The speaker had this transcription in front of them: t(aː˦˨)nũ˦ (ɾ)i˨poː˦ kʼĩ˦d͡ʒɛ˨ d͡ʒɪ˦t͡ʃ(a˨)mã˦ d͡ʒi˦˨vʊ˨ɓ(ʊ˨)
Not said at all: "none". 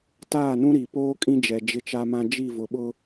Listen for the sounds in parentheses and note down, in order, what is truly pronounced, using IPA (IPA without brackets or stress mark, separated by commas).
aː˦˨, ɾ, a˦, ʊ˦